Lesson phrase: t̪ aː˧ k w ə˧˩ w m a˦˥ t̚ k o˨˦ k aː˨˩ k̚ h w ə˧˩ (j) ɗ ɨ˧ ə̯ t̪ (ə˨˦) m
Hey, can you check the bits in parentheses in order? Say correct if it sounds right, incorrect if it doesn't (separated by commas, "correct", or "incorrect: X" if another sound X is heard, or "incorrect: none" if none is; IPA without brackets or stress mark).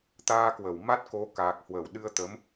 incorrect: w, correct